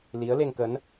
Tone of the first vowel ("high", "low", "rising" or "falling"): rising